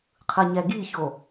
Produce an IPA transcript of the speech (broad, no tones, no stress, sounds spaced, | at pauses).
qʰ ɯ ɲ ɛ ɡ i ç o